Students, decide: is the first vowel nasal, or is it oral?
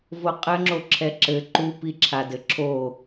oral